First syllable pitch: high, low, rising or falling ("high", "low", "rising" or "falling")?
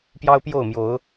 high